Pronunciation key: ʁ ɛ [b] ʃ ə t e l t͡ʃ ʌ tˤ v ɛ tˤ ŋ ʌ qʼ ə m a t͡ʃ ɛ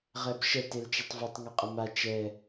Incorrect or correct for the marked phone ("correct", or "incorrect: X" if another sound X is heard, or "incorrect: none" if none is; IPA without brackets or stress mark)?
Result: correct